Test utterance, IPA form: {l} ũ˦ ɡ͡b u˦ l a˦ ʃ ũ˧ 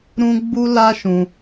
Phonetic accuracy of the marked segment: incorrect: ɾ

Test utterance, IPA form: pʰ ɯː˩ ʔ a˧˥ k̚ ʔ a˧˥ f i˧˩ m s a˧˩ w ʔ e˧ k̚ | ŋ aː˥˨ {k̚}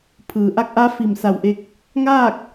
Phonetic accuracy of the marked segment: correct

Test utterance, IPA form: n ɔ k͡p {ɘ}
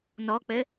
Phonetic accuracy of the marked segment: correct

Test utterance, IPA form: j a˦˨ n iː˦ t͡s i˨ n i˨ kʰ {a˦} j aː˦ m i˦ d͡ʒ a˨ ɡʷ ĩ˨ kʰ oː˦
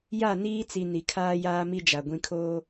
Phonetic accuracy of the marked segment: incorrect: aː˦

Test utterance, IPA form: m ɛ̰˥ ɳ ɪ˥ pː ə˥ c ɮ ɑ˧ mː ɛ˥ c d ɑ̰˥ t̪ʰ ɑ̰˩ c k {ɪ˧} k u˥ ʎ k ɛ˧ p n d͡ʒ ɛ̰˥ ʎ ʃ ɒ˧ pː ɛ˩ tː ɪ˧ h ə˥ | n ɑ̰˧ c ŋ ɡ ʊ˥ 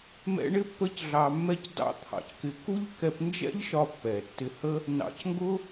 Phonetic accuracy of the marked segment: correct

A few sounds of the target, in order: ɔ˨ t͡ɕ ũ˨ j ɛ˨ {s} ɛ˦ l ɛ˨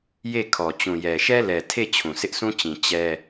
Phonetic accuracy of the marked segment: incorrect: ʃ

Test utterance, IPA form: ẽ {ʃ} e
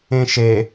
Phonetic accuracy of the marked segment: correct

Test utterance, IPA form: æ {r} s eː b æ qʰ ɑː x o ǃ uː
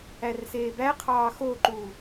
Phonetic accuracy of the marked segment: correct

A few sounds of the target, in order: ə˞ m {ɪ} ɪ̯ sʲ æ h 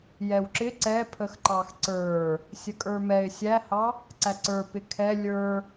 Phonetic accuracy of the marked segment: incorrect: ɛ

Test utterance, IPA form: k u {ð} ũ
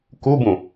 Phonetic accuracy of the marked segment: incorrect: b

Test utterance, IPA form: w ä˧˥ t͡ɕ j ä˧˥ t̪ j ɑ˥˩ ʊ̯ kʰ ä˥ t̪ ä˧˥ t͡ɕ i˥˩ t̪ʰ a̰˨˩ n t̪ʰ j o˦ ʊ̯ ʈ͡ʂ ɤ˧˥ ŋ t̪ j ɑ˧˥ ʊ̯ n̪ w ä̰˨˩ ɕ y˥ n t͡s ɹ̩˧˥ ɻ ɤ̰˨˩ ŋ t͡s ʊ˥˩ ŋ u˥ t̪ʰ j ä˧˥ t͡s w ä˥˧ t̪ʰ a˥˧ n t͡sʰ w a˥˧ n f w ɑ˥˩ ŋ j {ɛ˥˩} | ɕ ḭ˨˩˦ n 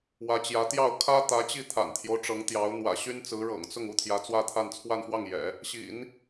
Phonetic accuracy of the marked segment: incorrect: ɛ̰˨˩˦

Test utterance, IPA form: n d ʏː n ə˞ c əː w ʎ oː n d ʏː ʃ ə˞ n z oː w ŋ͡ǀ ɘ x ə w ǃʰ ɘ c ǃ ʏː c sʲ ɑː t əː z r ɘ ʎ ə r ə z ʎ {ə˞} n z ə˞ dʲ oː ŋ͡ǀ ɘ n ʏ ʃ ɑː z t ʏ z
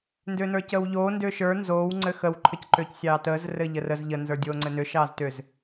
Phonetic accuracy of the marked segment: incorrect: ə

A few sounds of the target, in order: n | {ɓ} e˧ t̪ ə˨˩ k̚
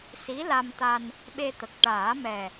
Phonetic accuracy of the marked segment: correct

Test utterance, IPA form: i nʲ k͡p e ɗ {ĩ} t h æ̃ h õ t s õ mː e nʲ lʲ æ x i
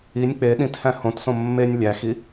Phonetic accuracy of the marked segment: correct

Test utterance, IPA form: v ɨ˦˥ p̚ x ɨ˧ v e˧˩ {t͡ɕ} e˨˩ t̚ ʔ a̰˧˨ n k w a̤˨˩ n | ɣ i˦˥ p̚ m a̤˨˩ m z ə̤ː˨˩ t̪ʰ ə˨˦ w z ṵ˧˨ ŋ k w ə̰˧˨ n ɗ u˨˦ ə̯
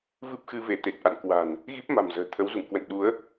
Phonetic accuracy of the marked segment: incorrect: t̪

